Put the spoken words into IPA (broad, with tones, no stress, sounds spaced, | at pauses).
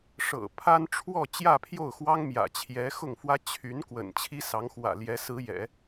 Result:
ʂ ɤ̰˨˩ pʰ a˥ n ʈ͡ʂʰ w ɔ˥˧ t͡ɕ j ä˥˧ pʰ j o˥˩ ʊ̯ x w ɑ˥ ŋ m j ä̰˨˩ t͡ɕʰ j ɛ˧˥ x ʊ˥˩ ŋ f w ä˥ t͡ɕʰ y˧˥ n k w ə̰˨˩ n t͡ɕʰ i˥ s ɑ˧˥ ŋ x w ä̰˨˩ l j ɛ˧˥ s ɹ̩˧˥ j ɛ̰˨˩˦